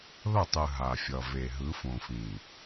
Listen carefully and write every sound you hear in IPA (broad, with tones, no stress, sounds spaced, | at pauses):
ð ʌ˦˨ tˤ ɯ˨ ɦ a˨ fʲ ʌ˨ v e˨ ɦ ɯ˨˦ f õ˨ f ĩ˨